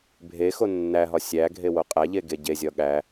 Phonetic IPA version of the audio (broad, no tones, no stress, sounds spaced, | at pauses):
bʱ e x o nː æ ɦ ɒ sʲ æ ɡʱ e w o qʼ æ ʎ e ɡ e ɟ e zʲ ɒ ɠ æ